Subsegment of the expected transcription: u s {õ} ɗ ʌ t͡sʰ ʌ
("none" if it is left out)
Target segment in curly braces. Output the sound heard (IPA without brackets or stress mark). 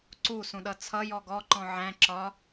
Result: ũ